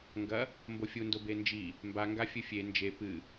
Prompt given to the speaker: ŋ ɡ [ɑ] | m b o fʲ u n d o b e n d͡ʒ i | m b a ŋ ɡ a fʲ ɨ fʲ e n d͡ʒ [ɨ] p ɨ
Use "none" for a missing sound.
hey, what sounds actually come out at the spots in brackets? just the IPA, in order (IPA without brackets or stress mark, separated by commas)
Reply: ɐ, e